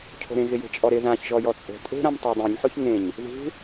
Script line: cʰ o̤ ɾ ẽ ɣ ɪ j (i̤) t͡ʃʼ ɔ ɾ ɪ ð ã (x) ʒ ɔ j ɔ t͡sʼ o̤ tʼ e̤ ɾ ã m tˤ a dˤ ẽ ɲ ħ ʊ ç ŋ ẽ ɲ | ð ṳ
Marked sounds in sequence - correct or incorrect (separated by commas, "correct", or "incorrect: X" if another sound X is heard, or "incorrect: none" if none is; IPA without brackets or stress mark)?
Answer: incorrect: e̤, incorrect: ç